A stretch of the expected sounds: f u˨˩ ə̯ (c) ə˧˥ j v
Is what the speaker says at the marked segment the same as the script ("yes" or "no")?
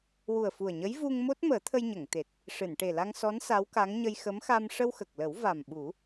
no